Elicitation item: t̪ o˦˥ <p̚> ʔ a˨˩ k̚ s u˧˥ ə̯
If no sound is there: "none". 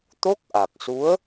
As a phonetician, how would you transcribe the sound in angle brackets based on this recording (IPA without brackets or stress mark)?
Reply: k̚